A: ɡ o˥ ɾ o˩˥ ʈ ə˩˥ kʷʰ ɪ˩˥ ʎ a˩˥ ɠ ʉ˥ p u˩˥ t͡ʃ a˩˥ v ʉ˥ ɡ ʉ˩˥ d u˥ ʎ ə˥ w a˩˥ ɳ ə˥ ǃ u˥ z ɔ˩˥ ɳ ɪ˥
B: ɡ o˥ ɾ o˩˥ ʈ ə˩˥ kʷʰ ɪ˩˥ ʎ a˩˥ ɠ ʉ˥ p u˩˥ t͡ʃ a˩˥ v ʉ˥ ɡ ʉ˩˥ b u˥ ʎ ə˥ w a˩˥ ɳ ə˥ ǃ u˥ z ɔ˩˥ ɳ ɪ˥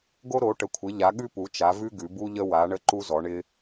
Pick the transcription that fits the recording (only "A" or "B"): B